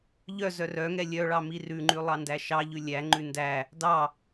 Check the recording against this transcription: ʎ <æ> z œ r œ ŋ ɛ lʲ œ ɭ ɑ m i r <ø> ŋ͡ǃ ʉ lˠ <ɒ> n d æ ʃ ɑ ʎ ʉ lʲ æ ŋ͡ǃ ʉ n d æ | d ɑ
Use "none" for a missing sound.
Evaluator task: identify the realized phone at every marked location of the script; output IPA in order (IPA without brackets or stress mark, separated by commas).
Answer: œ, ʉ, ɑ